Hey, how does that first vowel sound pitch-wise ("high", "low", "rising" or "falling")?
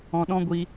low